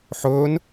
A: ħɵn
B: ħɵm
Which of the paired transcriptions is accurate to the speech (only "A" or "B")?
A